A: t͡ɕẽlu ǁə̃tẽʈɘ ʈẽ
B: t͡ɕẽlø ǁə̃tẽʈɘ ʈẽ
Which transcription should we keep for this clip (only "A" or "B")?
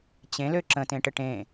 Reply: B